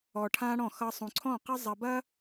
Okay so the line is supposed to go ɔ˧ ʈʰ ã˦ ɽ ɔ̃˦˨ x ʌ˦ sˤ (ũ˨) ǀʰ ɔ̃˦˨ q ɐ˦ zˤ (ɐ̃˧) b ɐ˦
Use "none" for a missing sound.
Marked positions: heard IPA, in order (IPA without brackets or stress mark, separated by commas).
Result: ũ˨, ɐ˧